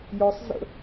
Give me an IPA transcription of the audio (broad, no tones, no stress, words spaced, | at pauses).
jɔsˤ zə̰